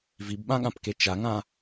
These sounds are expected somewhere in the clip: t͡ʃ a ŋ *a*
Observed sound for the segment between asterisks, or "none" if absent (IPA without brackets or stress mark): ã